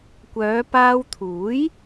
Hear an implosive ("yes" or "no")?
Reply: no